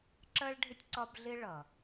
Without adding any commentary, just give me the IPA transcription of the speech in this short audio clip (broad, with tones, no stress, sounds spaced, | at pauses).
ǁ ɜ˥ ɭ ɖʱ ɪ˥ tʲ ǀ ɒ˦ b ɮ ɪ˥ ɭ ʌ˩